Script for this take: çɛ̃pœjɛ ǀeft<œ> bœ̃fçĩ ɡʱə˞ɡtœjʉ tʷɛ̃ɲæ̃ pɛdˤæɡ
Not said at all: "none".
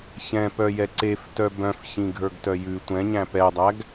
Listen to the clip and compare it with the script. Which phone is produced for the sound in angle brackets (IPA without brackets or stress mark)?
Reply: œ